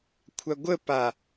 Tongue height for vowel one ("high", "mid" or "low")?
low